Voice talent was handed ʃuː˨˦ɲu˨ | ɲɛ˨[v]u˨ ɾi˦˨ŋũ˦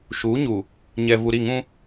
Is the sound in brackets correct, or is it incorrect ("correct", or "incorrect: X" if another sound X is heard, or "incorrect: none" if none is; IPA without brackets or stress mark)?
correct